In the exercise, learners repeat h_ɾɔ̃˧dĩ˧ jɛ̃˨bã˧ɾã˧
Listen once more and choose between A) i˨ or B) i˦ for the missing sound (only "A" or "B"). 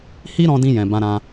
B